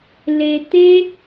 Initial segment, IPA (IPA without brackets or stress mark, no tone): l